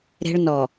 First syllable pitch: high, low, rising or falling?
high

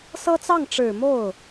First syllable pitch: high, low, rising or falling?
high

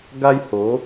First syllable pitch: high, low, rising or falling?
high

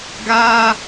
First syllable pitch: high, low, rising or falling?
high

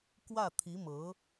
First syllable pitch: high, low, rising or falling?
falling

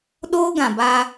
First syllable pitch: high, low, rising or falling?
high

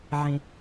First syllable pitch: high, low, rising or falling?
low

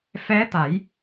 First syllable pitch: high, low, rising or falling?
rising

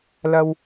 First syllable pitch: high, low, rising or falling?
high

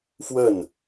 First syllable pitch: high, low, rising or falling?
falling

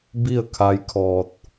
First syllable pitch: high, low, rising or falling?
falling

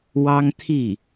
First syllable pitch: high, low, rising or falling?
high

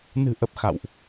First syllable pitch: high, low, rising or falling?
low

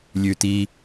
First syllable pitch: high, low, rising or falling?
low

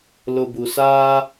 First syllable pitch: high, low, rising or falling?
low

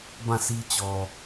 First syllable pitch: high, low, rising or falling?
falling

